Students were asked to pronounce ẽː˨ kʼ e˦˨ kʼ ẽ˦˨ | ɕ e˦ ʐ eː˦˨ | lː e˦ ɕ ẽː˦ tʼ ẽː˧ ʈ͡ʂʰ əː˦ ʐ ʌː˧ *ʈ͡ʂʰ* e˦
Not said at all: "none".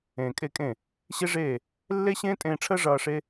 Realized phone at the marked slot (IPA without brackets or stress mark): ʂ